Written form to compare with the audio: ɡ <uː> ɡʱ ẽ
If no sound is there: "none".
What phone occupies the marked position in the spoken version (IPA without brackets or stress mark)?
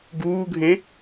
uː